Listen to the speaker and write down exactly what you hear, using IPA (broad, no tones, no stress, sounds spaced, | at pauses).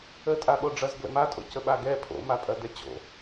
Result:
ə tʼ a ɓ o ɖ͡ʐ ɐ z ɡ l ə̰ m a tʼ o̰ c ə ɓ a ɡ ɛ pʰ o̰ m a pʼ ɐ d ɛ t͡ɕ o̰